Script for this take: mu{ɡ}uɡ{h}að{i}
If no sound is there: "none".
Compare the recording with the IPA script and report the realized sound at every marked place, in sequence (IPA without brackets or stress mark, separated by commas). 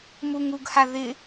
ŋ, h, ɪ